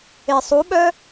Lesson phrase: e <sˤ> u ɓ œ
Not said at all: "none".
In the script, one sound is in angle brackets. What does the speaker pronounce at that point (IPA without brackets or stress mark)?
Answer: sˤ